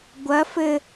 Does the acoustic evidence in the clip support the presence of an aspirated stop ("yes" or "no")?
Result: no